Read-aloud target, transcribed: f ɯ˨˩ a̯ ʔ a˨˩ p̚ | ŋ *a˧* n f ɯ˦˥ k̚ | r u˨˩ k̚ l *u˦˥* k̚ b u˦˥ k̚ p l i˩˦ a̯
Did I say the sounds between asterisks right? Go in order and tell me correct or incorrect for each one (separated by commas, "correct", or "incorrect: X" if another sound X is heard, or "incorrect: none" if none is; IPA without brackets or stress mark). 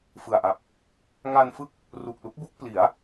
correct, correct